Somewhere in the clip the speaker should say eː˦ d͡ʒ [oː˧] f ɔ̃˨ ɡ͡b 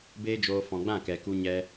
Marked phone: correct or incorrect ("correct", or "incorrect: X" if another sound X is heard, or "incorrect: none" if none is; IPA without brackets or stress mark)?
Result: correct